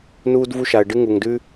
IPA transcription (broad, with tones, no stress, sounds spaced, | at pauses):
n uː˧ d v u˧ ʃ a˩ ə̯ ɖ ɨ˧ ŋ u˩ ŋ d ʉ˧